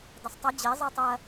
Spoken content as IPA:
d ɐ sˤ tˤ ɐ d͡ʑ e zˤ e tˤ ɐ

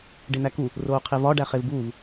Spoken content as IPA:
ɖ e n̪ æ k u | r oː qʰ e v ɒ ɖ æ χ e v b uː v

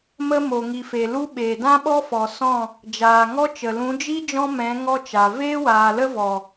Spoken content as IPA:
m ə˦ m o˨ ŋ i˨ f e˨ l u˦ ɓ eː˨ d ã˦ ɓ ɔ˦ f ɔ˨ s ɔ̃˦˨ | d͡ʒ aː˨ ŋ ɔ˦ t͡ʃ ə˨ l ũ˨˦ d͡ʒ i˦ d͡ʒ ɔ̃˦ m ɛ̃˨˦ ŋ ɔ˦ t͡ʃ a˨ v eː˦ w aː˨ l ə˦ v ɔ˨

